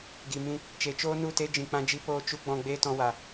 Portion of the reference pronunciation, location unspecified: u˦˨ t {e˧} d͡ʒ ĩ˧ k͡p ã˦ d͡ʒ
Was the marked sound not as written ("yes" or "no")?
yes